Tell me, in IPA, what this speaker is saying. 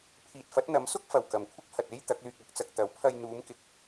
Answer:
pʰiː˨t̚fɐ˨˥t̚n̪ɐ˨˥msʊ˥k̚ fɐ˨wkɐ˨mkʷʰɪ˥k̚ hɐ˨t̚e˥j t̪ɐ˨˥k̚lyː˧k̚ɐ˨˥k̚t͡sɐ˧k̚ t̪ɐ˨˥wpʰɐ˧j n̪uː˨˧mkɪ˨k̚

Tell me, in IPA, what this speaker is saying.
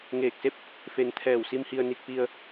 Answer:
ŋeː˧˩k̚se˥˨p̚ | fe˧n t̪ʰɛː˧˩wsi˧mhi˧ə̯ ni˧k̚pi˧ə̯

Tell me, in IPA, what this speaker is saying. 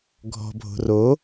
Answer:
ɡʱɔ̤bʱo̤ ro

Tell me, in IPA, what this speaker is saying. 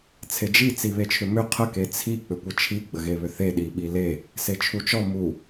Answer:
t͡sʰed͡ʒi t͡siβet͡ʃʰʏmʏ qʰə ket͡sʰi k͡pʏkʷət͡ʃʰi ɡ͡bəɣeβʏθe ɗiɓile | set͡ʃʰut͡ʃɔ mu

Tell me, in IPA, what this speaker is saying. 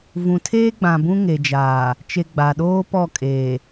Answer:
vũ˨tʰeː˦ɡ͡bã˨ bũ˦ ŋe˨d͡ʒaː˨ | t͡ʃe˨ ɡ͡ba˨ɗoː˦ pɔ˦˨kʼeː˨

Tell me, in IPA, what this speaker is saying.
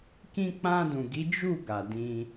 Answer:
kĩ˧k͡pã˧dũ˨ ɡi˨˦d͡ʒu˦˨ ɡa˨dĩ˧

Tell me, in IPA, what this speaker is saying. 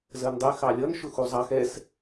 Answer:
zɜndˤɛ xɑlʲʌn ʃʊxuzˤɑx ɛs

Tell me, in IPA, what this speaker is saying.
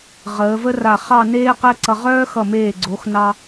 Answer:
ʁəː˩˧və˥ra˧˩ χɑ˥˧neː˥ qɛ˥ǀʌ˧ ʁœː˥xʌ˧˩meː˧˩ ɡ͡ǀo˩˧x nɑ˧

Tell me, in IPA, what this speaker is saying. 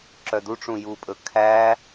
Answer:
ǁœduʈ͡ʂũ jupʼɵ kʰæ

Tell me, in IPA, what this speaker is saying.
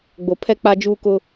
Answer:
ɡ͡bo˨pʰɛ˦ k͡pa˦d͡ʒuː˦kʊ˦

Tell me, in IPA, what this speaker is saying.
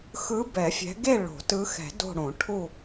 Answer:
xɯ˨˦ bɛ˨˩˦fʲɛ̤˨˦ ɡe˦˨ ɭo̤˨˩˦ tɯ˨˦xɛ̤˨˩˦ do̤˦˨ɽõ˨˩˦ ʈʰu˦˨

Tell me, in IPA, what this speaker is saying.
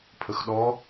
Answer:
pʰəxɗɔ

